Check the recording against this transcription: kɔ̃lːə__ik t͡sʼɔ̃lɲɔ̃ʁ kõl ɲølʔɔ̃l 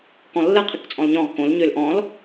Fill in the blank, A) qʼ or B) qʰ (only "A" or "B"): B